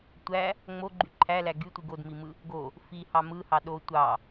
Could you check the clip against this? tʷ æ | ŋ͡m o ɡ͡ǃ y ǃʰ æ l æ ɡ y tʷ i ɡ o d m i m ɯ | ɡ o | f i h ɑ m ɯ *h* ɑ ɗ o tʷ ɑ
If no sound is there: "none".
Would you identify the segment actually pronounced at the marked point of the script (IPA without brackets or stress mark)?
h